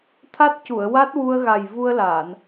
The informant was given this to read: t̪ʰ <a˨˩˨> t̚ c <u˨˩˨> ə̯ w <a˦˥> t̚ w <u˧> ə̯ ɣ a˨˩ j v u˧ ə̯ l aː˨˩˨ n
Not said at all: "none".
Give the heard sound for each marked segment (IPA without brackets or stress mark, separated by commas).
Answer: a˦˥, u˨˩˨, a˦˥, u˧